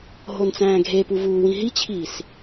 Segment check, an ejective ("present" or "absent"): absent